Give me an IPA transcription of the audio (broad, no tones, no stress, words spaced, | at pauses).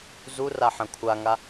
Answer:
zura ħɐ̃kʷʰaŋa